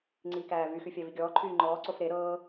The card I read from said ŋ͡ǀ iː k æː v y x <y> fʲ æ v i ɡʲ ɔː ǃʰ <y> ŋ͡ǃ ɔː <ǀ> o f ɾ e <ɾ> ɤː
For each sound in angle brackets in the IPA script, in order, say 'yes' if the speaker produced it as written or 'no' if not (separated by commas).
yes, no, yes, yes